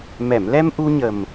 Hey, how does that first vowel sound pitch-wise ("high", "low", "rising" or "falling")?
low